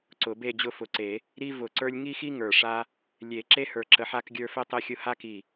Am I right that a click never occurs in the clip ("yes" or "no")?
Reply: no